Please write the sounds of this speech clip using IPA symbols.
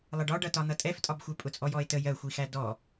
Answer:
lˠ ə ɖ ɒ ɖ ʌ t ɒ n̪ ʌ tʼ ɛ f tʼ ɒ b xʷ ɛ pʼ ʊ t͡sʼ ɔ j ɔ e̯ t ə j ɜ xʷ i x æ d ɔ

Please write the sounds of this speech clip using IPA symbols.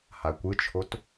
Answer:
h a kʷ ɯ t͡ʃʰ o t

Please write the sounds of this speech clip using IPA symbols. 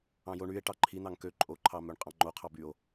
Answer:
ɑ̃ j o ɳ y e̯ ʈ ɑ ǃʰ i n̪ ɑ ŋ k ø ǃʼ o ǃʰ ɑ m ø ɳ qʼ ɑ̃ ŋ͡ǃ o qʰ ɑ b y o̯

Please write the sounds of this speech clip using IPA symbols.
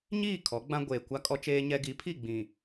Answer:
ɲ iː˦˨ kʰ ɔ˨˦ ɡ͡b ã˦ ɡʷ eː˨ kʷ a˦ kʼ ɔ˦ t͡ʃ eː˦ ɲ ɛ˦ ɡ i˨˦ pʰ i˦˨ ɡ͡b ĩ˨

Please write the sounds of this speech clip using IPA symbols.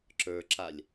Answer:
ǁ ə˞ ǁ a lʲ

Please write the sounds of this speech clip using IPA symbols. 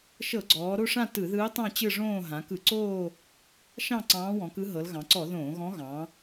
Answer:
ʃ ɤ˧˩˧ ɡ͡ǀ ɔː˩˧ ɾ o˥˧ ʂ ã˥˧ t ɯ˧˩˧ ð ɯː˧˥ tˤ ɑ̃˥˧ t͡ɕ ɯ˥˧ ʐ õː˥˧ ɦ ã˩˧ k ɯ˧˩˧ ǀ oː˥˧ | ʃ ɑ̃˥˧ ǀ ɑ̃ː˧˥ w ɔ̃˩˧ k ɯ˧˥ ɦ ɤ˩˧ l ɣ ɑ̃˩˧ ǀ ɔ˧˩˧ ð õː˧˩˧ ɣ ɔ̃˧˥ ɣ ɑ̃˩˧

